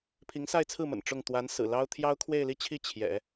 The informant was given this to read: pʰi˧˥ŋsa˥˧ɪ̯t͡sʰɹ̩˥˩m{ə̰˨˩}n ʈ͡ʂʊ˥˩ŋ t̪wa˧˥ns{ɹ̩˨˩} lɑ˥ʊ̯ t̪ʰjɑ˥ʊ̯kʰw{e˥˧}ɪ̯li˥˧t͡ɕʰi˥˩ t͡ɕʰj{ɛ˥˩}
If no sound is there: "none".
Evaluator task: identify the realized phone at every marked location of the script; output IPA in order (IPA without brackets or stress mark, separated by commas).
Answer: ə̰˨˩, ɹ̩˨˩, e˥˧, ɛ̰˨˩˦